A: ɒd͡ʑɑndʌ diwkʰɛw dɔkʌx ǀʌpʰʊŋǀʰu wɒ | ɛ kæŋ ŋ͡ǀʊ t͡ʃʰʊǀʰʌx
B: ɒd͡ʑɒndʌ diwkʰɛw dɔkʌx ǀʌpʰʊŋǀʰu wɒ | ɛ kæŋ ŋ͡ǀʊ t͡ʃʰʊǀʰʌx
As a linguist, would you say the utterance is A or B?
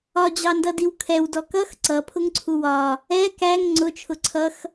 A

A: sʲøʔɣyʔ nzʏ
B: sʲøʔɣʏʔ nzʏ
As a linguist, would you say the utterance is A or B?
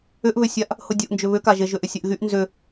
A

